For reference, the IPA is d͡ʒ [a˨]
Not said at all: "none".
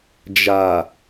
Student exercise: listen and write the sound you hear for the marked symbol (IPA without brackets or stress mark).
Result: a˨